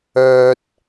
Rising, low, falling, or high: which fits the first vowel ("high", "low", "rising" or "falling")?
high